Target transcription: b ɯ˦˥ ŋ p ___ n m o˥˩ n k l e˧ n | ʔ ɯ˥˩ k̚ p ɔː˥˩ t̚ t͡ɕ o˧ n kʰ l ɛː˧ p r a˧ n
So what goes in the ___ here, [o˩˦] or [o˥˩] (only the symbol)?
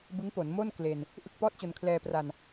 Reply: o˩˦